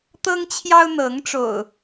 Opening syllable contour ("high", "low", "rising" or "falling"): high